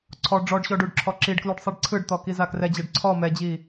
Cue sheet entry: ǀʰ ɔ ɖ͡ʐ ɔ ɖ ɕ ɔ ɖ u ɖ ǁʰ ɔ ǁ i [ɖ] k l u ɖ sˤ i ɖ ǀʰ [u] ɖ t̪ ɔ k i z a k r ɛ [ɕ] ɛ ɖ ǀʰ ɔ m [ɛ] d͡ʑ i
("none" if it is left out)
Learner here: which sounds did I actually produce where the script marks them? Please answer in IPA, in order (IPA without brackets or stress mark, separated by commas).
ɖ, ɯ, d͡ʑ, ɛ